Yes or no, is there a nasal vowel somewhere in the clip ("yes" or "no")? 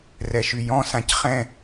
yes